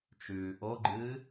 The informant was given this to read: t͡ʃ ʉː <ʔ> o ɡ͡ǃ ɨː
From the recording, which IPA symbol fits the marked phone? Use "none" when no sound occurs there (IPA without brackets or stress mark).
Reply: ʔ